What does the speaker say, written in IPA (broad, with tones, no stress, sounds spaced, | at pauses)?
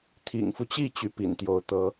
t̪ʰ ḭ˨˩ ŋ f u˦ t͡ɕ i˥˩ t͡ɕ y˧˥ p ḭ˨˩ n t̪ j o˧˥ ʊ̯ t̪ ɤ˧˥